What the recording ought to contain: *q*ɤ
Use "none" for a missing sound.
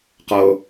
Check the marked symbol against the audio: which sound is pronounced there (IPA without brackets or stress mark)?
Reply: q